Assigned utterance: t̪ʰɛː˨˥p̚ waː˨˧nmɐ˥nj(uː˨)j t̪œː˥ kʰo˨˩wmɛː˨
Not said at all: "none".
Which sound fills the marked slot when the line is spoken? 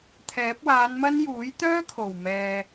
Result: uː˨˥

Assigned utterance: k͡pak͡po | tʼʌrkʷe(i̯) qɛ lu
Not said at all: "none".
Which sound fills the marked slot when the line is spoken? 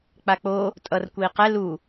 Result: i̯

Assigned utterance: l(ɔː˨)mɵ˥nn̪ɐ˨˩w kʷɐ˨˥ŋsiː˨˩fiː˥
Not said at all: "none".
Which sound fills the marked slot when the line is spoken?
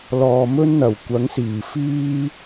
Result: ɔː˨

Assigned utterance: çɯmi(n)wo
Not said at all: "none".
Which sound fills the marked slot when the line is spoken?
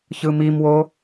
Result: m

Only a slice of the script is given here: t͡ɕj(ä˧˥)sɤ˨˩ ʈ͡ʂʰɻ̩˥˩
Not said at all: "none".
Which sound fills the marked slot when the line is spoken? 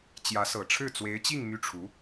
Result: ä˧˥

